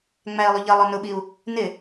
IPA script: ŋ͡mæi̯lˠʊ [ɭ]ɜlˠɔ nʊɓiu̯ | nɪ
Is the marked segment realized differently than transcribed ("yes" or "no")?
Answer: yes